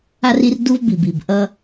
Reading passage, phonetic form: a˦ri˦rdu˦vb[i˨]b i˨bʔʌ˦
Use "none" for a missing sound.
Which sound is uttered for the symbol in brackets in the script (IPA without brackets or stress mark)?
i˨